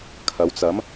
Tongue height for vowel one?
low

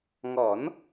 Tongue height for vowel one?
mid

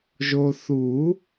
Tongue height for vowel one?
mid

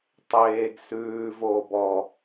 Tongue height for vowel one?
mid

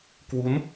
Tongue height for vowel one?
high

